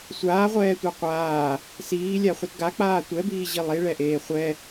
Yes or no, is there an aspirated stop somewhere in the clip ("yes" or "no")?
no